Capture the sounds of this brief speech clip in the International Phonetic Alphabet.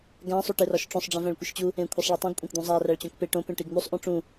ɡæ̃ sˤuʈerɒʃʈ͡ʂõsˤ ɖ͡ʐĩvæ̃ɭkʷiʃt͡ɕu | ẽkʷʰesˤɭitˤĩɡ kʷʼẽkd̪ũzˤæ ræɭt͡ɕõkpe ʈõ pẽʈiɡn̪usˤ ʔõʈ͡ʂũ

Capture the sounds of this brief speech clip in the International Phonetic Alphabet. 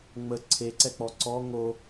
ŋ͡mə ǀʰeǀɛk͡pɔ ǀɔ ŋo

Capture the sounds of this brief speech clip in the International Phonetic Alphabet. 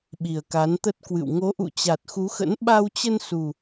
ɓi˨˩ə̯ka˨˦nt̪ə˦˥t̚ kwɨ̰˧˨w ŋo˨˦ʔṵ˧˨ t͡ɕa˨˩t̚xu˨˦xə̰˧˥n ɓa˧wt͡ɕə˧n su˨˩

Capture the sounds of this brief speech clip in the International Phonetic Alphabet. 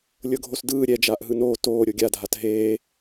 lʲɤɡʱosdɯː ɾʲɛ d͡ʒaːʔɦɯnoː toː ɾʲoɡʲadʱat ɦeː

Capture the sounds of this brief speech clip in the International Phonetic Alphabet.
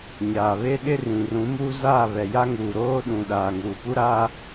ɲaː˨βe˦ɗɪ˦ rĩ˨rũ˨˦muː˦ zaː˦˨βɛ˨ ja˦ŋuː˨ɾoː˦ɗũ˨ ɗaː˨ŋuː˨pu˦ ɾa˦

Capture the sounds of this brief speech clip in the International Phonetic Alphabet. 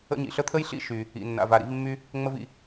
ə̰˥ ɲḭ˩ɬə˥t̪ʰə˥jɬḭ˦ ʃy˨ | ḭ˨ nːa̰˨va˨ɾḭ˦v mːy˥ | ŋ͡mə˦v ḭ˨

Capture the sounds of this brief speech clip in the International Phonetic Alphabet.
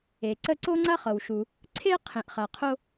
e˩ǀə˦ ǀo˥ŋ͡ǀɐ˥χɤ˩w ʃu˩ | ǀʰe˥ qʰẽ˩ʔχɐ˩ qʰo˦

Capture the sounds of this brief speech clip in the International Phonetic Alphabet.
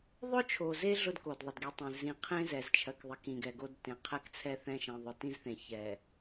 ðˤʊ˦t͡ʃʰo˨ze˦ ɮʊ˦d ko˨dðˤʌ˨dɡi˨tˤẽ˨ zĩ˨qʰẽ˦ zɛ˨zt͡ʃʰɜ˨kðˤe˨k ĩ˨ɡɛ˨ɡo˦dtẽ˨ qʰɛ˦kt͡sʰɛ˦θɛ̃˦˨ ʃɛ̃˨ðˤʊ˨tĩ˦zθẽ˨ çɛ˨

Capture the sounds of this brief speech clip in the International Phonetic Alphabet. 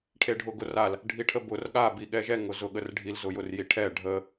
ʈʰeɖʱʊɡʊral | ɖʱiʈʰəbʊr ɠa biɠɛʒɛ ŋʊzʊɠərɖʱil zʊjʊrjiʈʰɛ ɖʱə

